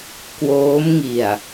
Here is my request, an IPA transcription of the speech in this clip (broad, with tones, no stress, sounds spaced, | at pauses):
k w oː˦˥ m ŋ i˨˩ a̯